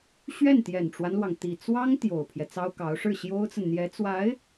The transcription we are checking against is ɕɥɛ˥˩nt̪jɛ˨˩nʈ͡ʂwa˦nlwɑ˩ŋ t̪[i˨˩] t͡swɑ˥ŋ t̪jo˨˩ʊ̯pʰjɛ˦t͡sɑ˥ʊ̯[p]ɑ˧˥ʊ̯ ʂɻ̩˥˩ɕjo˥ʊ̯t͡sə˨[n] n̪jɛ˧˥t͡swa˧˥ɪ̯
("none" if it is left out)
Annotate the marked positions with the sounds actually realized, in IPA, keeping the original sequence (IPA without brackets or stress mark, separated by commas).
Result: i˨˩, k, n